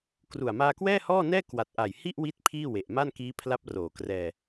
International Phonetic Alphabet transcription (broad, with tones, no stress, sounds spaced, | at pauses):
k r u˨˩ a̯ m aː˧ k w ɛː˥˩ h ɔː˥˩ n ɛː˥˩ k w a˨˩ t̚ ʔ a˨˩ j h i˥˩ ʔ w i˥˩ t̚ pʰ iː˥˩ w e˨˩ ʔ m a˥˩ n k iː˦˥ pʰ l a˦˥ p̚ r oː˨˩ k r ɛː˧